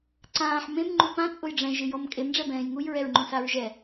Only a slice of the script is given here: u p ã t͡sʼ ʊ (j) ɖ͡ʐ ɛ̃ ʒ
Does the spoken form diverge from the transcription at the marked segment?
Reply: no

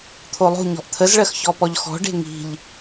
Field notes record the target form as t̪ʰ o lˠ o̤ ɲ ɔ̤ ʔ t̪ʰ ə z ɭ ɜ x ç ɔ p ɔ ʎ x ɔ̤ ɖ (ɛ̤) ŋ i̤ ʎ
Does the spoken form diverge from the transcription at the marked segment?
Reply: yes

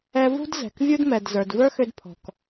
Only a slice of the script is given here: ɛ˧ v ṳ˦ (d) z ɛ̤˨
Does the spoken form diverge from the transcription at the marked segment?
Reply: no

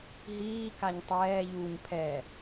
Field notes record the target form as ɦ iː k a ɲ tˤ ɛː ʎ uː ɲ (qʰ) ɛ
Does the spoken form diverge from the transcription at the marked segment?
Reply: yes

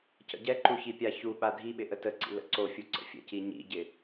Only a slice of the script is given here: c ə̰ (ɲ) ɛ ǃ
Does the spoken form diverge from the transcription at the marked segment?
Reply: yes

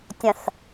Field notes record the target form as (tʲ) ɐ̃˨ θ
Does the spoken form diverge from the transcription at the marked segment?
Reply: no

